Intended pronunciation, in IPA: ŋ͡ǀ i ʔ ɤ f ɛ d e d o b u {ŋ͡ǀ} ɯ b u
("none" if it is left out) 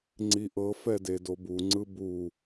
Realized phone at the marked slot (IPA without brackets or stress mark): ŋ͡ǀ